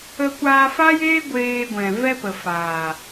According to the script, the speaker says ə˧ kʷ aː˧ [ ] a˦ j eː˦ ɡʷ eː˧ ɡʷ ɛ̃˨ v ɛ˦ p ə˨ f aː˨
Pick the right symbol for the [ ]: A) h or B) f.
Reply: B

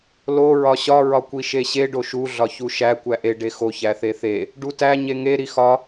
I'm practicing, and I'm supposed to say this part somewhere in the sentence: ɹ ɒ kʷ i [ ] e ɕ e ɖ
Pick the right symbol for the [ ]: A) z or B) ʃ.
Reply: B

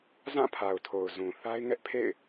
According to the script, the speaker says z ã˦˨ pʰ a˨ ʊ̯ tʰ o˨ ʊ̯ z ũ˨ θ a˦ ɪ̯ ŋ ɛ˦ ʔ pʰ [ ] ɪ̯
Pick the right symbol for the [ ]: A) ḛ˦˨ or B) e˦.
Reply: A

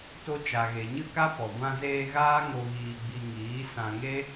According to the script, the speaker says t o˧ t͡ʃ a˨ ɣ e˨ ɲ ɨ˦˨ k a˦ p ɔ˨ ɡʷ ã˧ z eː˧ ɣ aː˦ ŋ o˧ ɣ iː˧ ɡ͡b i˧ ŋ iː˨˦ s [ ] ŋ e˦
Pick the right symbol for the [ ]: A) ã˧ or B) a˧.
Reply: A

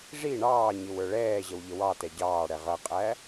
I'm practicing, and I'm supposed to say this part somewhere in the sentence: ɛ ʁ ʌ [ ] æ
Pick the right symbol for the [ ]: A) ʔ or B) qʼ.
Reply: B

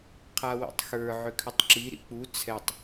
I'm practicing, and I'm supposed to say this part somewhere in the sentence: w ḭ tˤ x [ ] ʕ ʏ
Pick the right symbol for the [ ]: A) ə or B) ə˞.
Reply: B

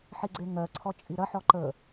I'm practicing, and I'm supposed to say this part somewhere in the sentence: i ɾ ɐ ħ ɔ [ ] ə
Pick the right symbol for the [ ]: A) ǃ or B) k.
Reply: A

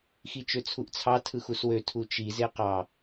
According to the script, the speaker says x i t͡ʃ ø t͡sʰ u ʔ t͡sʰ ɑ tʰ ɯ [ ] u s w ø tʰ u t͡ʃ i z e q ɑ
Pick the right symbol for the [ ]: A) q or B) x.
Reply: B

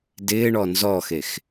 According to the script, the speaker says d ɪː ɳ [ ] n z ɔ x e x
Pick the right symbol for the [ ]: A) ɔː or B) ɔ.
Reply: B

